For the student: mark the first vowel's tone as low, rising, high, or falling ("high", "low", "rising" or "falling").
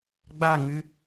falling